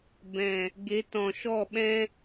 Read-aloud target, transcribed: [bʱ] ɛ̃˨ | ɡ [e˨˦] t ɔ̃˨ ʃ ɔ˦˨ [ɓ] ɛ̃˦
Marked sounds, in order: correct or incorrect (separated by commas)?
incorrect, correct, correct